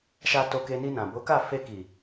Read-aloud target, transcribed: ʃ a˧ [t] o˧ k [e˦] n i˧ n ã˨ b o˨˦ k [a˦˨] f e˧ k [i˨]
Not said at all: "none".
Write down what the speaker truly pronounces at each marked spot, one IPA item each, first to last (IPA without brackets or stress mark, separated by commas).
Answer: t, e˧, a˦˨, i˨